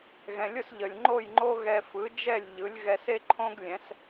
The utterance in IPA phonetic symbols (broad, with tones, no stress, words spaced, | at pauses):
ɣɛ̃˩lʲʊ˥˩sʎə˩lʲŋ͡ǃo˥˩j ŋ͡ǃo˥ɣɛ˧ fɯ˩˥d͡ʒɛ˥˩lʲ ʎɯ˩˥lʲɣɛ˧s e˥ǃʰõ˥ɡ lʲɛ̃˩˥s